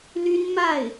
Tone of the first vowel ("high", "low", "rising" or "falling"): high